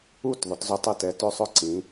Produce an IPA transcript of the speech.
u˦˨ t ðˤ ʊ˩˥ t z ʏ˦˨ tˤ ɪ˦˨ t ɛ˩˥ t ø˦˨ sˤ ʊ˦˨ ǀ ĩ˩˥

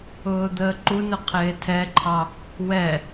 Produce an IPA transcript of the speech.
ʊː d̪ əː ǃ u n ʊ qʰ ɪː tʰ ɛ ǃʰ ɑ | w ɛ

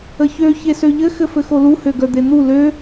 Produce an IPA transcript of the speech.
ə ç ø ç e s ø ʎ ɘ x ɘ f ɘ x o l u h ø ɡ œ d̪ e n̪ u l ø

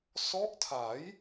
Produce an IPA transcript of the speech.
s ɔ˦˥ ʔ tʰ a˩˦ j

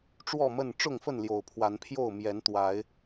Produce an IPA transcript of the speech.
ʈ͡ʂ w ɔ˥˨ m ə˥˨ n ʈ͡ʂ ʊ˥˨ ŋ f ə˥˨ n l j o˨˩ ʊ̯ pʰ w a˨˦ n pʰ j o˥˨ ʊ̯ m j ɛ˨˦ n t̪ w a˨˦ ɪ̯

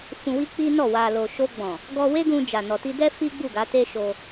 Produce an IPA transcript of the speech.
f ũ˧ w i˦ k͡p i˦ n ɔ˦˨ w a˨ l o˨ ʃ o˧ ɡ͡b ɔ̃˨ | ɡ ɔ˧ w e˦ ɡ ũ˧ d͡ʒ a˨ n ɔ˨ t i˧ d ɛ˦ f i˦ ɡ͡b u˦˨ ɡ a˨˦ t e˦ ʃ o˧

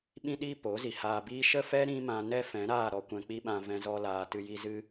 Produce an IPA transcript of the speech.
ɓ ĩ˦ ɗ iː˦ p o˨˦ z i˨ h aː˧ b iː˦ ʃ ə˦ f ɛ˦ ɾ ĩ˦ m ã˧ n ɛ˦ f ɛ̃˨˦ ɾ aː˦˨ ɾ ɔ˧ kʷ ɛ̃˧ k͡p i˦ ɓ ã˧ v ɛ̃˧ z ɔ˧ l aː˨ t ɨ˧ j i˧ z ɨ˦

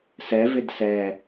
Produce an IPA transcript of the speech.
s ɛ v ɪ d s ɛ

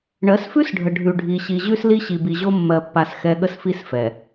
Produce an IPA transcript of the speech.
ɳ ɜ˨˦ s f ʉ˦ s ɖʱ ə˨ ɖʱ ʉ˨ ɖʱ i˨ ɕ i˨ ʑ ʉ˦ s l i˦ ɕ i˨ b i˨ ʑ o˦ mː ɜ˦ pː a˦ s x ɛ˦ ɠ ə˦ s f i˦ s f ɛ˨

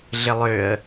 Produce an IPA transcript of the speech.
ɮ ɪ lˠ ø ə̯

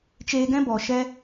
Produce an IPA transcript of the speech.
t͡ʃ eː˧ ɡ ɛ̃˦ b ɔ˨ ʃ ɛ˦

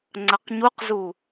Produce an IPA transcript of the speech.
ŋ͡ǀ ɐ q ɲ u q z u

